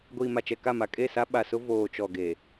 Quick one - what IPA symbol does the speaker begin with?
ɡʷ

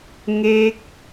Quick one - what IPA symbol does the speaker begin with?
ŋ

